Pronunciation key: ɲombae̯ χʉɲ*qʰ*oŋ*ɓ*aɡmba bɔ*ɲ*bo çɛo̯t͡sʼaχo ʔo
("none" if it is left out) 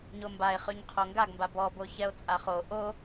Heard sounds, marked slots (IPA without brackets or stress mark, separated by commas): qʰ, ɡ, none